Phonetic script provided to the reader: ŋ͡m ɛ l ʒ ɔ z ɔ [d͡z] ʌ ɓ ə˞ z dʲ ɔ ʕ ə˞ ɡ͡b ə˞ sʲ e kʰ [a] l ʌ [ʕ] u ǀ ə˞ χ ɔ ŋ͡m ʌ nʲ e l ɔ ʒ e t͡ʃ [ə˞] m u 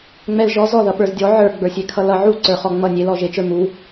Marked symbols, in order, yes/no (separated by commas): no, no, yes, yes